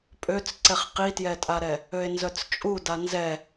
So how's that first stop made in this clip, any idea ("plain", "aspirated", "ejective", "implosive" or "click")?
ejective